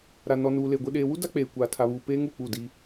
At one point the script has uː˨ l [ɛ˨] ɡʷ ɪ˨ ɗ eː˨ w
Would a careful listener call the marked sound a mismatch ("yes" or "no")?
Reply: yes